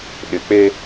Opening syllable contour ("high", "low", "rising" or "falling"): low